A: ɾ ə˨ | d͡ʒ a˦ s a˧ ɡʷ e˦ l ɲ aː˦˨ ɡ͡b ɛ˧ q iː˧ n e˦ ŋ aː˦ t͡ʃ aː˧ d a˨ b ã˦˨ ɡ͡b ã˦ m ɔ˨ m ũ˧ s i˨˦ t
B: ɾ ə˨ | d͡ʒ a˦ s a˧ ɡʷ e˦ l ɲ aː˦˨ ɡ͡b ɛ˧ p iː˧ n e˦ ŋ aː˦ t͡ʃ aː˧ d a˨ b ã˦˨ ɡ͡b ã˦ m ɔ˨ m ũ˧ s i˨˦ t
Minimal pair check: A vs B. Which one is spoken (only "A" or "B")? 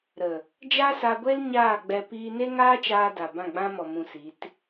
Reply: B